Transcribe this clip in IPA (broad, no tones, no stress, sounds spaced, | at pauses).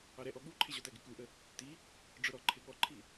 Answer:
ɑ ɾ ɛ ʔ ɔ ɠ u ǃʰ ɪ ʑ ɔ t æ ɡ ɪ k u ʔ ə | t i | ɖ͡ʐ ʊ ɾ ɔ ǃʰ ɪ ɠ ɔ ǃʰ i